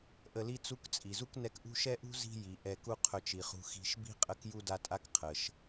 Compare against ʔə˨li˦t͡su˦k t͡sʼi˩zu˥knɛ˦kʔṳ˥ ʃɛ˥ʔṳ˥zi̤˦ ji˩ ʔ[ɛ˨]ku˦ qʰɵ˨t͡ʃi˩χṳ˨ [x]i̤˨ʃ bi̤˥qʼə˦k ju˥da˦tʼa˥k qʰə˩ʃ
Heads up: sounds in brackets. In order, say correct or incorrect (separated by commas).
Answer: correct, correct